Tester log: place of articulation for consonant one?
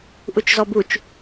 glottal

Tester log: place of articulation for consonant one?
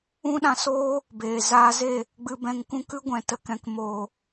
alveolar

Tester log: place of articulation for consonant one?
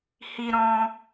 glottal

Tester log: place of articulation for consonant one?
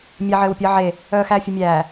labial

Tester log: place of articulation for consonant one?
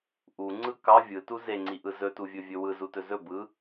glottal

